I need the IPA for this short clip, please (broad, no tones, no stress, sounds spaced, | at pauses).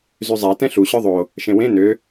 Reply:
z y zˤ æ t ɛ̃ ɬ u ɕ œ ðˤ o | ʃ ẽ w ẽ n ø